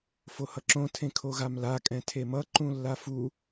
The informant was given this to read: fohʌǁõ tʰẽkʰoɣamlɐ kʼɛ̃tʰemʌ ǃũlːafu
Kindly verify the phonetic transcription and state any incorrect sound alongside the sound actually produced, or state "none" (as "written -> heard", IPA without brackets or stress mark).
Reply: ɐ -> a